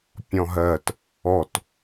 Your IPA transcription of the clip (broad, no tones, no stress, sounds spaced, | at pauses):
pʲ ɔ̃ ɦ ɜ t | ɔ t